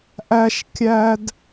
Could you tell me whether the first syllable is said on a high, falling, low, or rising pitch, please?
high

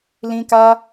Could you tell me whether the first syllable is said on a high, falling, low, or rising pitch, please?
high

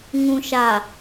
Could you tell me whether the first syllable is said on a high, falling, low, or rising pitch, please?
low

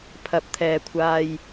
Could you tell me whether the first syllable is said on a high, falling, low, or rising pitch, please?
rising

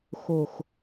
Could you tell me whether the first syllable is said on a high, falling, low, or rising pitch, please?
low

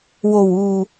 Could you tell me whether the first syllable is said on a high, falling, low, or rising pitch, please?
low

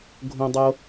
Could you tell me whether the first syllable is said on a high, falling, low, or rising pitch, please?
low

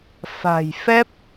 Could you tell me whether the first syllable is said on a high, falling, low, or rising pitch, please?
low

